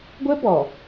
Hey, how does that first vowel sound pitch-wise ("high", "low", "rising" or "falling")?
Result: high